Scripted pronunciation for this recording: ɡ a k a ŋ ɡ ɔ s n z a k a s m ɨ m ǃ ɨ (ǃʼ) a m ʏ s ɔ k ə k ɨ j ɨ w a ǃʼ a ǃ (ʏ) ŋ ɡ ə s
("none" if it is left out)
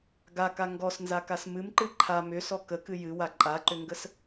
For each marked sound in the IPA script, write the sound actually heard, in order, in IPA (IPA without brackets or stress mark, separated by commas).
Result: ǃʰ, ʏ